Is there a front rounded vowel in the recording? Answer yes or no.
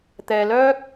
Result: yes